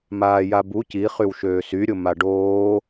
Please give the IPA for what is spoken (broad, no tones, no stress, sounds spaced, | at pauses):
m aː j a b u c i χ y w ʃ øː s y ɾʲ ʊ m a ɖ oː